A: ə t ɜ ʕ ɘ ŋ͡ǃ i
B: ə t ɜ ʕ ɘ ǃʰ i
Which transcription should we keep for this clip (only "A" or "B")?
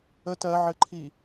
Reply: B